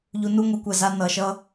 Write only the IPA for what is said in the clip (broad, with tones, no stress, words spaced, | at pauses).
ʎu˨ nu˦ŋʷi˨˦kʷɛ˨za˧ nʌ˨ʃʌ˧